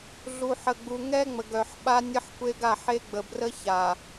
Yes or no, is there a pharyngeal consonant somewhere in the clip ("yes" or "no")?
yes